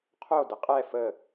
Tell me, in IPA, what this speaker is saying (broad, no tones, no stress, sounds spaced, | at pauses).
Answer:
qʰ o d ə qʼ ɛ f ə